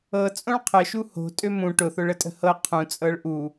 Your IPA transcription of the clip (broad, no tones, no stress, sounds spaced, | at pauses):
ɤ t͡sʼ õ ɭ qʰ ə ʃ u h o̤ tʼ ø m ũ ʈ ʊ θ ʊ ɭ ə tʼ ə̤ h ɤ qʰ ũ t͡sʼ ɤ ɭ ʔ u